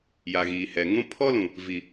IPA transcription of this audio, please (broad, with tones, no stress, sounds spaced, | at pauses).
j a˨ ɣ iː˨ h ɛ˨ ŋ ũ˦ pʰ ɔ˦ l ũ˨ | v i˨